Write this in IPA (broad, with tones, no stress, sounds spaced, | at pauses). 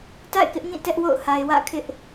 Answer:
t a̰˦˨ ɪ̯ k ɪ˦ ʔ ŋ ĩ˦˨ t ɛ˦ ʔ w o̰˦˨ ʊ̯ h a˨ ɪ̯ w ä̰˦˨ kʰ ɪ˦ ʔ